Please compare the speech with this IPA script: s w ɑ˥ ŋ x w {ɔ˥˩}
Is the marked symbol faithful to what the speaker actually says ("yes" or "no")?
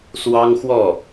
yes